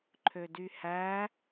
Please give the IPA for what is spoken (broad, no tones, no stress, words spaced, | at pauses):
ǃʰødyhæ